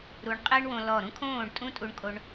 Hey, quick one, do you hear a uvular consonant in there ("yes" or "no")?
yes